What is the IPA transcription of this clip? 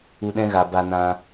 u˧ ɗ ɛ̃˦ ɣ a˨ b a˧ n ã˧

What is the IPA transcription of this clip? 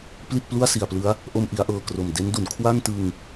p l i˥˩ t̚ p l u˥˩ a̯ s i˨˩ a̯ p l ɯ˦˥ a̯ | ʔ o˧ m ʔ i˩˦ a̯ ʔ ɤː˨˩ k r o˨˩ m d e˦˥ n d u˩˦ n kʰ w a˥˩ n t ɯ˧ ŋ

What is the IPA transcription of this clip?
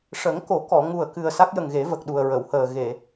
ʂ ə˨˩˦ ŋ k o˨˩˦ k ɔ˨˩˨ ŋ u˨˩ ə̯ k ɨ˨˩ ə̯ s a˦˥ k̚ j ə˨˩ ŋ ɣ e˨˩˦ v ə˨˩ k̚ ɗ u˨˩ ə̯ ɹ ə˨˩˨ w h əː˨˩ ɣ e˨˩˨

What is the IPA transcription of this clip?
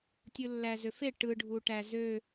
tʲ ɯ lː æ z ø f e ʈ ɯ ɖʱ u ʈ æ z ø

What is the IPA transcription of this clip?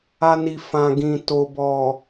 a˧ n i˨ f ã˨ ɡ ĩ˨ t o˨ b ɔ˨

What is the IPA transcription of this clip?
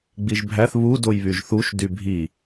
ɡ͡b i ʒ bʱ æ θ β u d o j β y ʒ θ u ʃ d y bʱ i

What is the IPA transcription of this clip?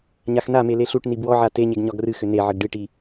ɲ a x n a m e l e ɬ u ʈ n i b w ɔ ʕ a t e ɲ e ɡ ɲ ɒ ɡ r ɨ x ʏ n e ʕ ə ɡ ɖ ɨ ʈ i

